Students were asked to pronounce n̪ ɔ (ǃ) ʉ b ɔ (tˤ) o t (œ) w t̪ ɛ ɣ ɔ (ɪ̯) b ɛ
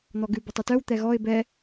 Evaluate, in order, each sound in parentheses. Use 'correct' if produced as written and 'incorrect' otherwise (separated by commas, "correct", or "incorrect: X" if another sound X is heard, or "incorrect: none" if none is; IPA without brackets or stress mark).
incorrect: ɡ, correct, correct, correct